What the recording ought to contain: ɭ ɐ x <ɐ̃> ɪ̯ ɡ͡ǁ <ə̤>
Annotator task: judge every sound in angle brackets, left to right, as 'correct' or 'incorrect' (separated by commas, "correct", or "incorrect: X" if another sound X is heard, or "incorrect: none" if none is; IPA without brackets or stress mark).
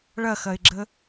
incorrect: ɐ, incorrect: ə